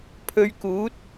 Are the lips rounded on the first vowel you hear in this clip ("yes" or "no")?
yes